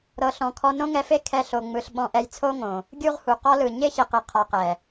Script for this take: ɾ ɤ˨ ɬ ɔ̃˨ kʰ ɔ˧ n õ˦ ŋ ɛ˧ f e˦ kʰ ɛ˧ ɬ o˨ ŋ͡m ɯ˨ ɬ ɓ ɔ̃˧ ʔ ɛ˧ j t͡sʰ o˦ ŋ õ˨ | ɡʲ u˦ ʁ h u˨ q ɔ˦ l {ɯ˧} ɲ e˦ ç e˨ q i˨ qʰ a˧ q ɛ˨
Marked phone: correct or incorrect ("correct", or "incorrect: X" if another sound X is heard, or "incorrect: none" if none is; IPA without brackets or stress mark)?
incorrect: ɯ˨